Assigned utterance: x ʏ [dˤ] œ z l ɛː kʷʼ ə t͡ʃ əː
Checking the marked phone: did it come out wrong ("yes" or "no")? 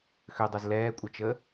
no